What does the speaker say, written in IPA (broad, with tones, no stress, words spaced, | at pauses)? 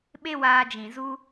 ɓe˦waː˧d͡ʒĩ˨ zu˧